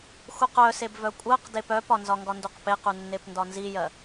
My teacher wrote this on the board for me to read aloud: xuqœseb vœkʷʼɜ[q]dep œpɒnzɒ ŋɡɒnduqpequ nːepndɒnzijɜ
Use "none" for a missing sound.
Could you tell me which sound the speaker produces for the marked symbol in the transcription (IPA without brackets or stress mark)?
q